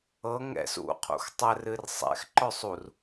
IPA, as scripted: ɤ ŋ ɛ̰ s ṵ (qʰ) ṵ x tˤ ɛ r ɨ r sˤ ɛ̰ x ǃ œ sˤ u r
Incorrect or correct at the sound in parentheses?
correct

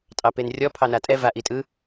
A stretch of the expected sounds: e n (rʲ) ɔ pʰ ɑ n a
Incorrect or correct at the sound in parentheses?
correct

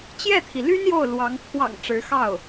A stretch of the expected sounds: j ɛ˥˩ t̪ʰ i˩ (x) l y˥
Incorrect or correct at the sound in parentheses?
incorrect: none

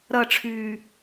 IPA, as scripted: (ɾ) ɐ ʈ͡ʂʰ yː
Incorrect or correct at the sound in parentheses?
correct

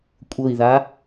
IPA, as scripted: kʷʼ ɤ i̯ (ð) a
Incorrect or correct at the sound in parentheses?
correct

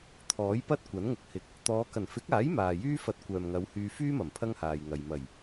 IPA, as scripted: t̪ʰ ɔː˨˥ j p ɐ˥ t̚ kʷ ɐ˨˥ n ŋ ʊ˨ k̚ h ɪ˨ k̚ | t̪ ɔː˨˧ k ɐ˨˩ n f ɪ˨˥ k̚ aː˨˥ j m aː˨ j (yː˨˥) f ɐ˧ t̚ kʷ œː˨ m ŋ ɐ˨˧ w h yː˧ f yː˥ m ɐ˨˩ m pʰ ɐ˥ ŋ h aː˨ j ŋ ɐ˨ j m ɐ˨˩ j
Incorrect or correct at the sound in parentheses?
incorrect: yː˥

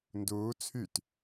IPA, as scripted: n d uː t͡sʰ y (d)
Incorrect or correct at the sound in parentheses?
incorrect: t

